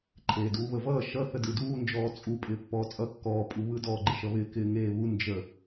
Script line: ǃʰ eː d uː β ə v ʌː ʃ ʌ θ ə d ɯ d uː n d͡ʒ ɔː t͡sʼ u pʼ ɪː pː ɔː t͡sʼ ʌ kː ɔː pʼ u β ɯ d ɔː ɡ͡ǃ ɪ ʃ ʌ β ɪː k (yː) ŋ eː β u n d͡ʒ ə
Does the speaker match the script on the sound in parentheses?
no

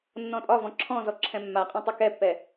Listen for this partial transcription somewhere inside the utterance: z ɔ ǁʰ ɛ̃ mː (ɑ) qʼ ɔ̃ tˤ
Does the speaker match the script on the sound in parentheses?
no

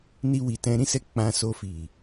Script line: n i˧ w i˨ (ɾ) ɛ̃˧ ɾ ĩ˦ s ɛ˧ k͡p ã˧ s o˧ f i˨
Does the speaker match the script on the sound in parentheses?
no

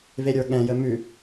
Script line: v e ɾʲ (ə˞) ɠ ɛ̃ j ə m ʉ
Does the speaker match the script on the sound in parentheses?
yes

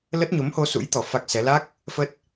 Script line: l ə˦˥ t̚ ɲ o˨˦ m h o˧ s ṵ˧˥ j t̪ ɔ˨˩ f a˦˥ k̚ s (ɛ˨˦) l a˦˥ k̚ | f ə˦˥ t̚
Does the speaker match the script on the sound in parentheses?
yes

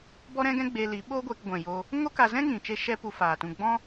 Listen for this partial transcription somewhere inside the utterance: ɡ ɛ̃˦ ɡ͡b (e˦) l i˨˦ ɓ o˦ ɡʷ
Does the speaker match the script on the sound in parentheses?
no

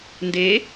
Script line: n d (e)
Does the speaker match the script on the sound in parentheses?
yes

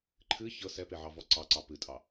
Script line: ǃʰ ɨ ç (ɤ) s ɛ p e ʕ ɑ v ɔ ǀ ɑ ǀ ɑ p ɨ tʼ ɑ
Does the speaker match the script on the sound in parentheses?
yes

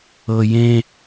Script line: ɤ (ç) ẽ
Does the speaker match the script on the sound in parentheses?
no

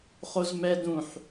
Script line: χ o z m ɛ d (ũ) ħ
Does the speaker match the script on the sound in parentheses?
yes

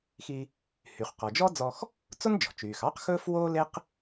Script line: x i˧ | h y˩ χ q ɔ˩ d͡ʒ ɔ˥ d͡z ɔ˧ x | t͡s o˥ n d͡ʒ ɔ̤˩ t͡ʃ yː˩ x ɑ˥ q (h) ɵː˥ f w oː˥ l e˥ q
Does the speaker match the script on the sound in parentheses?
no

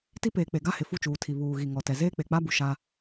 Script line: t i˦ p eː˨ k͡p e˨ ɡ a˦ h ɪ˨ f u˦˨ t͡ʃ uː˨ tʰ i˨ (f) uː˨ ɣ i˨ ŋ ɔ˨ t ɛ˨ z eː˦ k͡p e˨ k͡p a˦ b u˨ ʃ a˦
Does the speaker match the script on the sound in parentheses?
no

